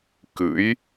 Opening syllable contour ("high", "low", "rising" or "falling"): rising